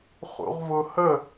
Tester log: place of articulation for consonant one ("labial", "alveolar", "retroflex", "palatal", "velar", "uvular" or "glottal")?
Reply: uvular